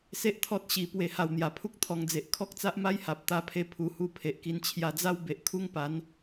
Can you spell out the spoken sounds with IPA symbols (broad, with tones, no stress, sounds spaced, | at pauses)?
s e˦ ʔ t̪ʰ ɔ˦ t̚ ɕ i˧ p w e˧ h a˧ w n̪ j a˨˩ pʰ u˦ k̚ t̪ʰ ɔ˧ ŋ d͡z e˨ ʔ kʰ ɔ˦ k̚ t͡s a˦ ʔ m a˦ j h a˨ p̚ t̪ a˧ pʰ e˧ pʰ u˧ h u˥˧ pʰ e˨ ʔ k i˧ n t͡ɕʰ j a˧ d͡z a˦ w b e˨ ʔ kʰ u˦ ŋ p a˨˦ n